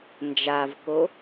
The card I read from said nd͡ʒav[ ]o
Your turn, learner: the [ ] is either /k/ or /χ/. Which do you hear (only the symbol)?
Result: k